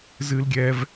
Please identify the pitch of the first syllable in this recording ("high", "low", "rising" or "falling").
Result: high